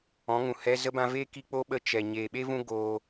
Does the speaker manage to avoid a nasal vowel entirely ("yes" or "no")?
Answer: no